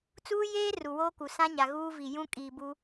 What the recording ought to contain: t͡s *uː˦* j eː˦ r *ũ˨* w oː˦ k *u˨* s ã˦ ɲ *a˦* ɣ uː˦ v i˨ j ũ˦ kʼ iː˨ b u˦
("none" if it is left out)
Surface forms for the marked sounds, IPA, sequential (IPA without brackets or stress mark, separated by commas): uː˦, u˨, u˨, a˨